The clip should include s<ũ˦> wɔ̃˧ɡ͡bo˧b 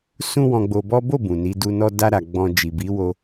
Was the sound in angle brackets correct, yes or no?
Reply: yes